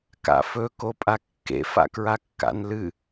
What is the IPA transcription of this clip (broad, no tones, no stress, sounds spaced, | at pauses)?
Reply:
k a̰ f ɵ k o pʼ a kː ḛ f a̰ k ɹ a kː a̰ n l ɨ